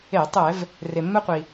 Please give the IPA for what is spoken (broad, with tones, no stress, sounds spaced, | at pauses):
e˧˩˧ tˤ ɛ˧˩˧ v | r e˩ mː ɛ˧ qʷ i˩